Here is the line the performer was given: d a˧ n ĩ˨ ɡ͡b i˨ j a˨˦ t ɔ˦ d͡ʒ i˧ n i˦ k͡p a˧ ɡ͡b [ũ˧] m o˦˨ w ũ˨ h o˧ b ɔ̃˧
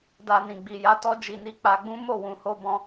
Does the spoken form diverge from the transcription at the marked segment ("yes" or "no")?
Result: yes